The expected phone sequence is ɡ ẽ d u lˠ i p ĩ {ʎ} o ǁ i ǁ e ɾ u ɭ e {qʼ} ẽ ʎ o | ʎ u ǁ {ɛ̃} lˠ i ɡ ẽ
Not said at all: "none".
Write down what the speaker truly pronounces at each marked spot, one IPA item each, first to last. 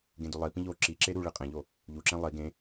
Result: ʎ, qʼ, ẽ

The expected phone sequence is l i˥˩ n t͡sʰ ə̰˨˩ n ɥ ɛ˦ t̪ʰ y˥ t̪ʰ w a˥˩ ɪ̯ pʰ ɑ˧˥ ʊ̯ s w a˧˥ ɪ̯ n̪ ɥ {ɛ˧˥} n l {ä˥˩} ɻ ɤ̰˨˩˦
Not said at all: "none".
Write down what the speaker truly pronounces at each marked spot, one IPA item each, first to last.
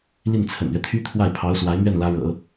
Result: ɛ˥˩, ä˧˥

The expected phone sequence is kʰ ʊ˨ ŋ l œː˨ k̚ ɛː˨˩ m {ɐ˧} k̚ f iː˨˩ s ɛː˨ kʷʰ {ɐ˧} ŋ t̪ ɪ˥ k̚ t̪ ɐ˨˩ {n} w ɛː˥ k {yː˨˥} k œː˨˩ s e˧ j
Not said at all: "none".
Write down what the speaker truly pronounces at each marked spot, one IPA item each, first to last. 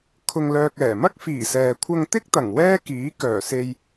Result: ɐ˥, ɐ˧, ŋ, iː˨˥

